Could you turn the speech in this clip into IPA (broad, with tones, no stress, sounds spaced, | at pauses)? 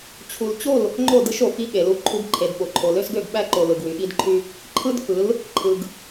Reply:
t͡ɕʰ u˨ l t͡ɕ o˦˨ l | ŋ͡ǃ o˦˨ d ɯ˦ ʃ o˨ f i˦ ɠ e˨ l u˦ ǃʰ u˦ ɡ ǃʰ e˨ d ɓ o˨ ǃʰ o˨ l ø˦ s ɡ ø˦˨ ɡ ɓ æ˦ ǃ o˨ l ɯ˨ ɡ w y˨ ɠ i˦ d ǃʰ y˦ | ǃʰ ɯ˦ d f ɯ˨˦ l | ǃʰ ɯ˨ ɡ